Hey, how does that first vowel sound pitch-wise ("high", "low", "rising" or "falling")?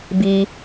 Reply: low